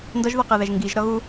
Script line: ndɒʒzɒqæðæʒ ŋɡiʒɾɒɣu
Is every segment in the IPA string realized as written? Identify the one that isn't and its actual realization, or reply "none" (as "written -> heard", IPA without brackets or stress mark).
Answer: z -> ð